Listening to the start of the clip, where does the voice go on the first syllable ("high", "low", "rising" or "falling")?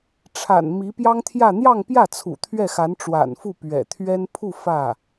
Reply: low